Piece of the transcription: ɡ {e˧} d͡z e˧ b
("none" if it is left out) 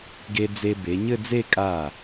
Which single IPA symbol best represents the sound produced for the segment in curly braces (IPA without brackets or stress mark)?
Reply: e˧